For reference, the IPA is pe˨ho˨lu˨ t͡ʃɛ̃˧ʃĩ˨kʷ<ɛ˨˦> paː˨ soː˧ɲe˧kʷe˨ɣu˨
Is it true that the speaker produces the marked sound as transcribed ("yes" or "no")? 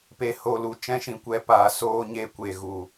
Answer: yes